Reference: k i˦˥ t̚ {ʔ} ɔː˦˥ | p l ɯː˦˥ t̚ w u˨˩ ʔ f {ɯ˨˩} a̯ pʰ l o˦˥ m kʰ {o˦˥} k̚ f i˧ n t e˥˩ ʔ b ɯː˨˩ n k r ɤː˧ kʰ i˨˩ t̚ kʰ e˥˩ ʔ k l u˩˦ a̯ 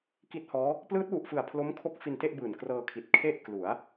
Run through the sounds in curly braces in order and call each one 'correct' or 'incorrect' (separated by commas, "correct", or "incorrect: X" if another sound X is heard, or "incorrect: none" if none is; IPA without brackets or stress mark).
incorrect: h, correct, correct